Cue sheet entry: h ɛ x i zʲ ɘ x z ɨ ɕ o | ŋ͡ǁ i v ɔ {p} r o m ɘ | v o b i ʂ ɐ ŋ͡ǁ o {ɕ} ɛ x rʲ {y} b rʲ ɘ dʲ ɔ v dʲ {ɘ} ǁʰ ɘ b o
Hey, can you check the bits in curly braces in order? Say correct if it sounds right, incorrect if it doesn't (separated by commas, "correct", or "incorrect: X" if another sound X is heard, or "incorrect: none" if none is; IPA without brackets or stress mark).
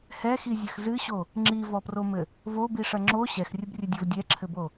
correct, correct, incorrect: ɨ, incorrect: ɛ